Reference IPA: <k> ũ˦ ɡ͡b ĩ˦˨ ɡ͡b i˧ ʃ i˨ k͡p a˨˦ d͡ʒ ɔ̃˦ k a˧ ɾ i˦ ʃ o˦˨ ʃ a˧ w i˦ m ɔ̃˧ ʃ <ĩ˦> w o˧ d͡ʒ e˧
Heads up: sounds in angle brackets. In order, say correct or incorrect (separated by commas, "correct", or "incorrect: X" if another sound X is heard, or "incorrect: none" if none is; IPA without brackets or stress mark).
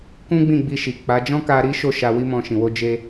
correct, incorrect: ĩ˨